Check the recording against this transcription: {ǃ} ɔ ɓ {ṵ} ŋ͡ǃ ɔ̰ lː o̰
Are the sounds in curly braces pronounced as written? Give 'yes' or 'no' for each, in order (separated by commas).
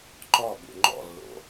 yes, yes